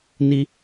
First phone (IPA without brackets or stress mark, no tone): n